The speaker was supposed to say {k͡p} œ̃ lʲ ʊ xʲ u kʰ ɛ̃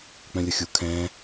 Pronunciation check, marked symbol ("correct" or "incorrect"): correct